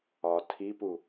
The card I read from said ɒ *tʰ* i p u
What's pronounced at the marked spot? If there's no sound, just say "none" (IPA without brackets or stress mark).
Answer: tʰ